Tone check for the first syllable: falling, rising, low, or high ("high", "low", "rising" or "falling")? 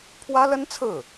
high